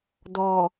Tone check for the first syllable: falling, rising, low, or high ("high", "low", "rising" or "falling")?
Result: low